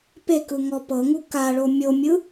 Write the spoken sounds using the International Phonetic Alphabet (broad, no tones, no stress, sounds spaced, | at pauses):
p e k ɯ ŋ ɔ p ɤ ŋ u k a ɭ o mʲ o mʲ ɯ